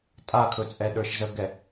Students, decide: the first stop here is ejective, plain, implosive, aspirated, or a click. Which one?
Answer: ejective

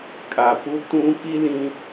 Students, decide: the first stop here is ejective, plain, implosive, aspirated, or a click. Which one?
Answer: ejective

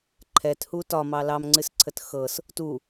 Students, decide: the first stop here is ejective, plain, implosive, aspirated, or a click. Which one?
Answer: click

